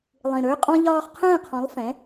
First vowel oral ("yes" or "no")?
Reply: no